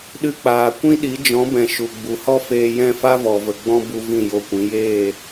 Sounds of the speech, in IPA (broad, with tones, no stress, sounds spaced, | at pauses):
ɗ ɨ˧ k͡p aː˨ kʷ ĩ˦ ɗ i˨˦ d͡ʒ ɔ̃˨˦ b ɛ̃˨ ʃ u˨ ɡ͡b u˨ h ɔ˦ f eː˧ j ɛ̃˦˨ f a˦ v ɔ˨ v ə˨ ɡ͡b ɔ̃˦ b u˧ v ĩ˦˨ j o˧ kʷ ĩ˨˦ j eː˦˨